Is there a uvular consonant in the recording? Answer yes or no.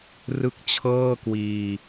no